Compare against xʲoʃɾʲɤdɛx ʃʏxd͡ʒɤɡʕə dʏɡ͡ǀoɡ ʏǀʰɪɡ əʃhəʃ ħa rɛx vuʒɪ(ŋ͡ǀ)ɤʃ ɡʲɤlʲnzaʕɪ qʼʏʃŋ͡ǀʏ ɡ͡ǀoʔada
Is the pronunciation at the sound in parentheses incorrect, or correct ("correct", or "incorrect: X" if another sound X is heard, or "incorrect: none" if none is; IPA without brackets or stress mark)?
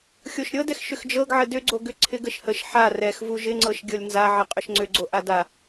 correct